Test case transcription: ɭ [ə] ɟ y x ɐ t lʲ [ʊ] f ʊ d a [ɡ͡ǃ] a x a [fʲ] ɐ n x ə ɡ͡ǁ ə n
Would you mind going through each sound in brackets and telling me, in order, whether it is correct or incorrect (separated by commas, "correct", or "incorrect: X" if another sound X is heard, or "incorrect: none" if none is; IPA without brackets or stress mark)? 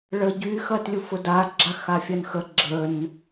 correct, incorrect: u, incorrect: ɡ͡ǁ, correct